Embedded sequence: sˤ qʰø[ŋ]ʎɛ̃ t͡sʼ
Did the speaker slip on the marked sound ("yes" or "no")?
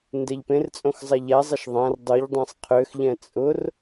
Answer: yes